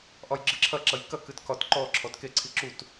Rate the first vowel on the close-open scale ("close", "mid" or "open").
open